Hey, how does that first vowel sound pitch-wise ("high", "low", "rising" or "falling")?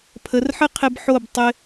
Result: rising